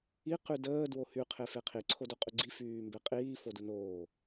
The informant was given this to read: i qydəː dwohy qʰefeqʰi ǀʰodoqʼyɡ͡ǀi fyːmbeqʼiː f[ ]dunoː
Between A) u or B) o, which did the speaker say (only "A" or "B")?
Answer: B